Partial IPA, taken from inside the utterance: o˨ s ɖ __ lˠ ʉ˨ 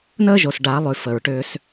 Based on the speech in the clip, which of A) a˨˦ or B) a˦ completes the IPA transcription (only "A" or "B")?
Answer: A